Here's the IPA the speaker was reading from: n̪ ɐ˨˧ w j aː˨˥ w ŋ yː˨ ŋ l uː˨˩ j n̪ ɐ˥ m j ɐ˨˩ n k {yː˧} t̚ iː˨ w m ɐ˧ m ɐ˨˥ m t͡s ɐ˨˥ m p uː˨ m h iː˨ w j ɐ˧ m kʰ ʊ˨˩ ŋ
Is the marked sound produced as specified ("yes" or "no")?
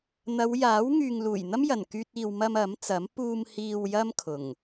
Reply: yes